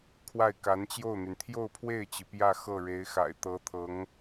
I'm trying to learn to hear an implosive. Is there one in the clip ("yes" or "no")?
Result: no